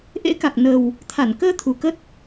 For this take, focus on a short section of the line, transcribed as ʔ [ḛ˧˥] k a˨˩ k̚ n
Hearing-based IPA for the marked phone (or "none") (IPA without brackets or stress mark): ḛ˧˥